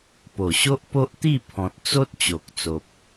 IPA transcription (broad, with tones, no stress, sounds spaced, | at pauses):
p o˨˩ ɕ o˦ ʔ p o˦ ʔ t̪ i˥˧ pʰ ɔ̃˨ t̚ t͡s o˦ t̚ t͡ɕ o˨ k̚ t͡s o˨ p̚